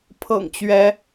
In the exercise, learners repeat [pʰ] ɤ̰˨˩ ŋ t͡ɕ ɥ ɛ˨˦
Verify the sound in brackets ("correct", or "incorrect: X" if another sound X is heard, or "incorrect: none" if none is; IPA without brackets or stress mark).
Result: correct